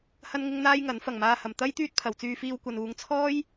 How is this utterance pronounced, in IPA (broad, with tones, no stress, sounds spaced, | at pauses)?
h ɐ˥ n ŋ ɪ˥ ŋ n̪ aː˥ j ŋ ɐ˨˥ n f ɐ˨˩ ŋ m aː˧ h ɐ˨˩ m t̪ ɐ˥ j t̪ yː˥ t̚ pʰ ɐ˨ w t͡s yː˧ f iː˧ w kʷ ɐ˨ n uː˨˧ ŋ t͡sʰ ɔː˥ j